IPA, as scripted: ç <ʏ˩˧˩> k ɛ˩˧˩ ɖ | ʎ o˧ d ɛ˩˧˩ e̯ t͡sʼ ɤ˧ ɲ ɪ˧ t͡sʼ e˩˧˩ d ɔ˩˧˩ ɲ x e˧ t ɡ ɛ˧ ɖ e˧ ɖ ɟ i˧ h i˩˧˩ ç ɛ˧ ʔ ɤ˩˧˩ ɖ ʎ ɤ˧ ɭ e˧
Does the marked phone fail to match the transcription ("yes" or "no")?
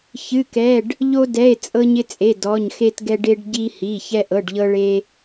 yes